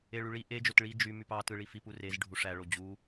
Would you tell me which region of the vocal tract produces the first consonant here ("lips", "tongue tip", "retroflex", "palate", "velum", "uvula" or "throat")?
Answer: retroflex